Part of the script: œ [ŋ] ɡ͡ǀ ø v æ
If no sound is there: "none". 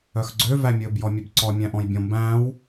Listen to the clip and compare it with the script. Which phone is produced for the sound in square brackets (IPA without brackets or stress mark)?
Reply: x